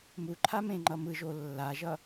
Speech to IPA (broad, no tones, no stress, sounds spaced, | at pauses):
m u ǃʰ a m ẽ ŋ͡ǃ ʌ m ɯ ʒ o lː a ʒ ʌ